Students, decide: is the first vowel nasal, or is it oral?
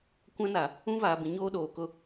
nasal